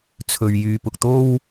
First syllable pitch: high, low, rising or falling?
low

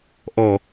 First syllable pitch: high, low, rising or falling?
low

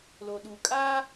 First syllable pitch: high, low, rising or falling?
low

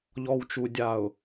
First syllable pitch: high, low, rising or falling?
low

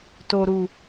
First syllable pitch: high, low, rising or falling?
low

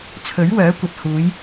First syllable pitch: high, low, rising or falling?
rising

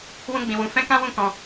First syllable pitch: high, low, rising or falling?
high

